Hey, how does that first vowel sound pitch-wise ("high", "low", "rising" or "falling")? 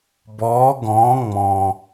rising